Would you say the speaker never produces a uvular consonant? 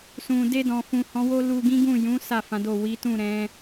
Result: yes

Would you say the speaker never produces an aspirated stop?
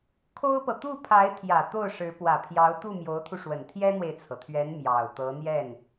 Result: no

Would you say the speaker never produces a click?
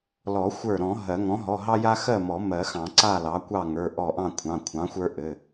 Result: no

